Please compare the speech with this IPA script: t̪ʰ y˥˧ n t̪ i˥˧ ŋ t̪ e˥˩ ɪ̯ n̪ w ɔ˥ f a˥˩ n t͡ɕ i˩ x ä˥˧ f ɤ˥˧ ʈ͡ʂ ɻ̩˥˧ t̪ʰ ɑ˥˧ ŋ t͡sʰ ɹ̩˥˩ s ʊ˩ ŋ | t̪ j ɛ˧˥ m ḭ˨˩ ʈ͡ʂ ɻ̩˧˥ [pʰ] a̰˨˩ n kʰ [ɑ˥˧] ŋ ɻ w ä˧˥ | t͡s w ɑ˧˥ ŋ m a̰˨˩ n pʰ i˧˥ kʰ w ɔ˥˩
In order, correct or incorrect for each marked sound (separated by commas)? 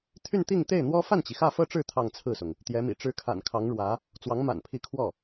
incorrect, incorrect